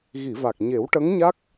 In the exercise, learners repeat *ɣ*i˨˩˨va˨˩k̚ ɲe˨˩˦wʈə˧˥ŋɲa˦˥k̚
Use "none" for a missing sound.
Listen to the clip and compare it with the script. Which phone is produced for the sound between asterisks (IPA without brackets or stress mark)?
ɣ